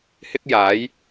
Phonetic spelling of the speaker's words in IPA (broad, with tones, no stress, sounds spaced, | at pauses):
h ɪ˥ k̚ j aː˨˥ j